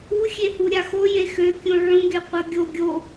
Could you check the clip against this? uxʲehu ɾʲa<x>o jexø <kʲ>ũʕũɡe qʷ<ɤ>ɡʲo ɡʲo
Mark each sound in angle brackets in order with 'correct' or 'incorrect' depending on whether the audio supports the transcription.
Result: correct, correct, correct

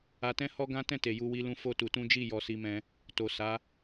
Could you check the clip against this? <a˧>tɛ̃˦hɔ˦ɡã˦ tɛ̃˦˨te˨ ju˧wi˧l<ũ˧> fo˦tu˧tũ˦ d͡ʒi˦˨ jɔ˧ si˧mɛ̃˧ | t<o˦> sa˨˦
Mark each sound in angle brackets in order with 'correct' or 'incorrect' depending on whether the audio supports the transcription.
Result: correct, correct, incorrect: o˨

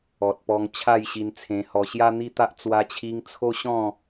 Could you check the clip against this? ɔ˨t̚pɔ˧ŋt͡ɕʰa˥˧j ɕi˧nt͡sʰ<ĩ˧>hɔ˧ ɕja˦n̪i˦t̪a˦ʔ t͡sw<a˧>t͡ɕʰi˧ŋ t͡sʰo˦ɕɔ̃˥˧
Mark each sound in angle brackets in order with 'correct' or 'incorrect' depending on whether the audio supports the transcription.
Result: incorrect: ẽ˧, correct

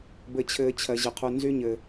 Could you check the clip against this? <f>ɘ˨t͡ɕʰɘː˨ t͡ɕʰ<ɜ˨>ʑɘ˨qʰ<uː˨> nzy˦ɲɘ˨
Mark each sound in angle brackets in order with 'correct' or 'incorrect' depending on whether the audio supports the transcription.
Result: incorrect: b, correct, incorrect: u˨

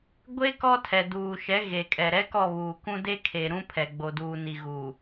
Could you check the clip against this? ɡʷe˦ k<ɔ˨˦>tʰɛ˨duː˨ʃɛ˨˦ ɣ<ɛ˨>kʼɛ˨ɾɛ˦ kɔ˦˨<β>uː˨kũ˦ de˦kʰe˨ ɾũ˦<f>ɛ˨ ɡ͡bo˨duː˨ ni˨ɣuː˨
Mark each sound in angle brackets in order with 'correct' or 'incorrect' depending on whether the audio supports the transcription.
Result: incorrect: ɔ˦, incorrect: e˨, correct, incorrect: pʰ

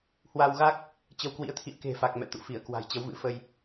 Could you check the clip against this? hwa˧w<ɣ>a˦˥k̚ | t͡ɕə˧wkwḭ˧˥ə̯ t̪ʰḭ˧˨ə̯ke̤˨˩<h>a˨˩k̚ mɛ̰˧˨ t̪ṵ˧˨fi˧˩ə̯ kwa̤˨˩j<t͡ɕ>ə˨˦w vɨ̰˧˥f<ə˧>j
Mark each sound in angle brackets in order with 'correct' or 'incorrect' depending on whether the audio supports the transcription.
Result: correct, incorrect: f, correct, correct

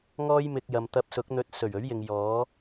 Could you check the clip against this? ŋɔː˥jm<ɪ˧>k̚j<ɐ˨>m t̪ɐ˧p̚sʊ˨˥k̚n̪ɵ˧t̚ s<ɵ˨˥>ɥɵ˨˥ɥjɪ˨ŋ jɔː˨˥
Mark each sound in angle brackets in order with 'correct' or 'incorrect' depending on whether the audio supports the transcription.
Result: correct, correct, incorrect: ɵ˨˩

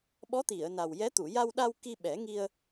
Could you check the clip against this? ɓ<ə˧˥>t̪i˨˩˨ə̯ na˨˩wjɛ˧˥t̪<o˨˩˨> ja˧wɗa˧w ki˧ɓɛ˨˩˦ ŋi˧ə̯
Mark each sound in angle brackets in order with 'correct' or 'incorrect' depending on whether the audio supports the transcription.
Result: incorrect: ɔ˧˥, incorrect: u˨˩˨

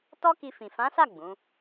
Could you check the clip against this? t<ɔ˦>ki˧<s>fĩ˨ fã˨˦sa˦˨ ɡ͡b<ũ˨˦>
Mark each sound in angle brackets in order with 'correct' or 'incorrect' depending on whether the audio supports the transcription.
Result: correct, incorrect: none, correct

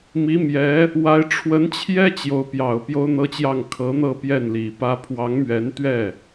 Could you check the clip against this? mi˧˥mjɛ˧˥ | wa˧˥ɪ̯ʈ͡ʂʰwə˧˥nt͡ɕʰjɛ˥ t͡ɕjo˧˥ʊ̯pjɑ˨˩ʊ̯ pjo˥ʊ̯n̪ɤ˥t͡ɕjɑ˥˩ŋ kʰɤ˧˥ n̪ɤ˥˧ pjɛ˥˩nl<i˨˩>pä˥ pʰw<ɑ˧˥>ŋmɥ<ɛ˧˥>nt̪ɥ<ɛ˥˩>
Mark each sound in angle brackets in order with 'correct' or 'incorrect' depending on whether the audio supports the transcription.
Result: correct, correct, correct, correct

